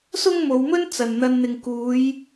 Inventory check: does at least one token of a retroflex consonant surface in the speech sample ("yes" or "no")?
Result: no